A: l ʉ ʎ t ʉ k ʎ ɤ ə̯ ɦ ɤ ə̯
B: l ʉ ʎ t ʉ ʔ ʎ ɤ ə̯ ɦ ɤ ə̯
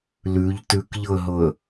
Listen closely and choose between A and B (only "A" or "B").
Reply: A